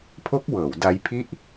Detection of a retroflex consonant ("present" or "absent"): absent